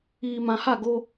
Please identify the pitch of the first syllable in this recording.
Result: low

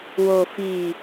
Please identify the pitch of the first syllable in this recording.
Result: low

